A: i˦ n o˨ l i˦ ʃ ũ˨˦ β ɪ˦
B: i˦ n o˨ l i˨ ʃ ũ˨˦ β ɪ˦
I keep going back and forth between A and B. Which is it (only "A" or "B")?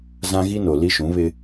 A